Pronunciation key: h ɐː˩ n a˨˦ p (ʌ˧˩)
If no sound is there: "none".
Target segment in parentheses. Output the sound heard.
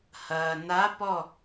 ɔ˧˩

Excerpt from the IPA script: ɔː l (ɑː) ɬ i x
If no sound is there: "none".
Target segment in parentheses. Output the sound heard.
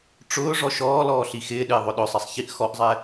ɔː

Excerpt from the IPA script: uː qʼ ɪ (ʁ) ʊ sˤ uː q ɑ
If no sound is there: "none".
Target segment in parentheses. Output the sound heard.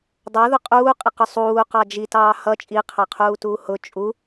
q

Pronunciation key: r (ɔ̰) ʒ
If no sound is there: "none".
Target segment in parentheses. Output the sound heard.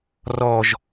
ɔ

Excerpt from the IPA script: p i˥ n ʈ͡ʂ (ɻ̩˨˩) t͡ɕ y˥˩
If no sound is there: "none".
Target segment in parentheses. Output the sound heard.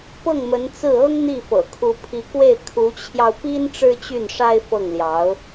ɻ̩˥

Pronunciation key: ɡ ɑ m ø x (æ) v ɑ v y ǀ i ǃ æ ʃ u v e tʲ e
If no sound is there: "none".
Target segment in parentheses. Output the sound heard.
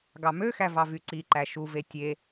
æ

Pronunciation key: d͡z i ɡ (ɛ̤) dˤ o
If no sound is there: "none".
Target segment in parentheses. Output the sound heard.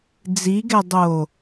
ɛ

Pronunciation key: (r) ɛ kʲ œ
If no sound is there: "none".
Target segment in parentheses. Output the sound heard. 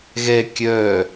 ɣ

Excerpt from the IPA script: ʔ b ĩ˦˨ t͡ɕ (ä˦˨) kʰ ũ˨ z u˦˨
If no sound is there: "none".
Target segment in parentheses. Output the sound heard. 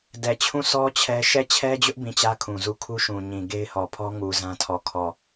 ä˦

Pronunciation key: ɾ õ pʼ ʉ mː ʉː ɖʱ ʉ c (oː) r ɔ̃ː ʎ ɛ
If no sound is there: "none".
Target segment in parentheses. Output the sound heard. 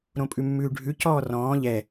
ɔː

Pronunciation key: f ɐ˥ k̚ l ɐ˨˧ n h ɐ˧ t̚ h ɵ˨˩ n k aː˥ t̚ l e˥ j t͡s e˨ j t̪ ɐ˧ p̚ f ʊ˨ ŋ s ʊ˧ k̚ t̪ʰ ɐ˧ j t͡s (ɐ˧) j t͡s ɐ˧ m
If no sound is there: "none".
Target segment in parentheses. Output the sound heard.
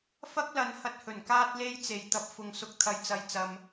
ɐ˧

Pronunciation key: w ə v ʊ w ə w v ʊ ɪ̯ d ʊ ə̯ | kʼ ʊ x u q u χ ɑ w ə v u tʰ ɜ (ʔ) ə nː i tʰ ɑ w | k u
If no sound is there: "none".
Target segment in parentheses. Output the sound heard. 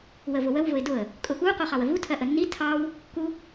ʔ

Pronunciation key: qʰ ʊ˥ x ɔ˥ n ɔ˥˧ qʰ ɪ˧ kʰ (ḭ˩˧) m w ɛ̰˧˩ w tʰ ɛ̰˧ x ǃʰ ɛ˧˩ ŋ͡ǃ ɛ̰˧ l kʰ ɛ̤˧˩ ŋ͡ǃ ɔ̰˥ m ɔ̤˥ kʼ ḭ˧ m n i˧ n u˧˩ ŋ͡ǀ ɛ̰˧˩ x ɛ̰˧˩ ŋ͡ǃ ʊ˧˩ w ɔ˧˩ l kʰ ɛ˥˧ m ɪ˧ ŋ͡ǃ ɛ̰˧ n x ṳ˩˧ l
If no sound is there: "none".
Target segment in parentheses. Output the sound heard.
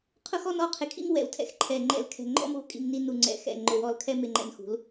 ḭ˥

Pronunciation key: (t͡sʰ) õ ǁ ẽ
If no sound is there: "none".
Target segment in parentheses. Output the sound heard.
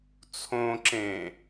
t͡sʰ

